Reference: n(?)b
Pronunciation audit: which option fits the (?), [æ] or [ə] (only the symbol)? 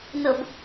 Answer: ə